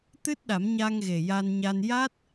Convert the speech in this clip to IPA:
t̪ ɨ˦˥ t̚ ɗ a˨˩˦ m ɲ a˧ ŋ ɣ e˨˩ j a˧ n ɲ a˧ n j a˦˥ t̚

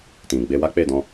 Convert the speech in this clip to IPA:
t ĩ˨ ɡ͡b e˧ w a˦ k͡p e˦˨ d ɔ̃˧

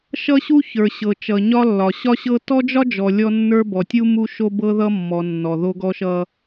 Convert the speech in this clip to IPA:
ʃ ʌ˦ ɕ u˦ ç ə˞˨ ɕ ɤ˨ t͡ʃ ʌ˨ ɲ ɒ˦ lː ɒ˨ ɕ ɒ˦ ɕ ɤ˦ t ɔ˦ d͡ʒ ɒ˦ d͡ʒ ɔ˨ lʲ ɔ˦ nː ə˞˦ b ɔ˨ tʲ u˦ m u˦ ʃ o˦ b ɤ˦ ð ʌ˦ mː ɔ˨ nː ɔ˨ ð o˦ ɡ ɔ˦ ʃ ʌ˦

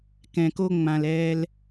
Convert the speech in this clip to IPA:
k ɛ̃˨ k o˧ ŋ͡m ã˨ l ɛː˧ l

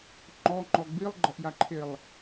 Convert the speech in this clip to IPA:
ŋ͡ǃ ɔ ŋ͡ǃ ɔ ɡ͡b i lˠ ɡ͡ǃ ɐ ʔ j a ǃʰ e lˠ

